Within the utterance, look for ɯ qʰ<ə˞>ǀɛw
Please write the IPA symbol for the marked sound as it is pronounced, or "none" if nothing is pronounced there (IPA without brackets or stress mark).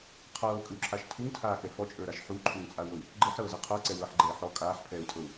ə˞